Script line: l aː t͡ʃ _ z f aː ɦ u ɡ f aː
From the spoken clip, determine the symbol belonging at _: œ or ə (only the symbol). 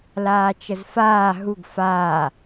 ə